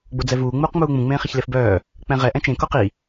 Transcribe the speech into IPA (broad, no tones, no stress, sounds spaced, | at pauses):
ɡ͡b o d͡z ɛ v uː ŋ͡m uː q ŋ͡m uː ŋ͡m ũ ŋ͡m ẽː χ i ç l e f b œː | k͡p ɛ̃ ʁ ɛ ʔ ɛ̃ t͡ʃ ẽ k o q i